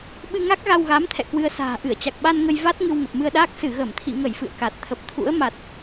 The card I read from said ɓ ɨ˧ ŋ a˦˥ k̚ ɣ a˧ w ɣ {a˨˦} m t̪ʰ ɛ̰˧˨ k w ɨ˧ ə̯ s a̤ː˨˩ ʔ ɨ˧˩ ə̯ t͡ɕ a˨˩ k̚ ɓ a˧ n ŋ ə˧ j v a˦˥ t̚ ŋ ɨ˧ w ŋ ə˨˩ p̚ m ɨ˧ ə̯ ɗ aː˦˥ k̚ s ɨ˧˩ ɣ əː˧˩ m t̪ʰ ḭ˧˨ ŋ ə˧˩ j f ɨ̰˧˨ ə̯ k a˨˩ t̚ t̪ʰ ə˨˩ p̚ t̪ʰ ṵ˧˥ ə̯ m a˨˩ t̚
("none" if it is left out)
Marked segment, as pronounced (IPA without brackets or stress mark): a˨˦